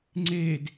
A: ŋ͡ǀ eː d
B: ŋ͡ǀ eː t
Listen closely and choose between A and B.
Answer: A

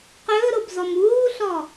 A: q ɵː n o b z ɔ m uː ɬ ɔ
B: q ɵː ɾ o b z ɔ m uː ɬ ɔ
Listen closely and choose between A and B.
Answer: B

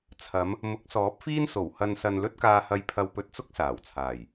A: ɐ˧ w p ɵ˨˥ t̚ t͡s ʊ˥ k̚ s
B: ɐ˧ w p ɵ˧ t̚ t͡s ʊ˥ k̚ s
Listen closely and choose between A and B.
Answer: B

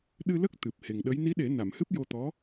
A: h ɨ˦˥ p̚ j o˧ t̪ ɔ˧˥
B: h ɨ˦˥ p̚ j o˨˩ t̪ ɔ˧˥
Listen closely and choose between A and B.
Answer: A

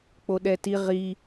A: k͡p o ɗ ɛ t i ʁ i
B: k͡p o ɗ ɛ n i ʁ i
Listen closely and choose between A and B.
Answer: A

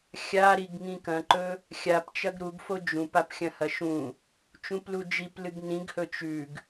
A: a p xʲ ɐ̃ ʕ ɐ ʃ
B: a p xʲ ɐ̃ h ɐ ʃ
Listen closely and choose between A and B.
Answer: B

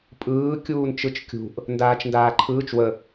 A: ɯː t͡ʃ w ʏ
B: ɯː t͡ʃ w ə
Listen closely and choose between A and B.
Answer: B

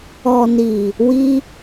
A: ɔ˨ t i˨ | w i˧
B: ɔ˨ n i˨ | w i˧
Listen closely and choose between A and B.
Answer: B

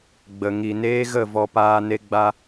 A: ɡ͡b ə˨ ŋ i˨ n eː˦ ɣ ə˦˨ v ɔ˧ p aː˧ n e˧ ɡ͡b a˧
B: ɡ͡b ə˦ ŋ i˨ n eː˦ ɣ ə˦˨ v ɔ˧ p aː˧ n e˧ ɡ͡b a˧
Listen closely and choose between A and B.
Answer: A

